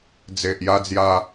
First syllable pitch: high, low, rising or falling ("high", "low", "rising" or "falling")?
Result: low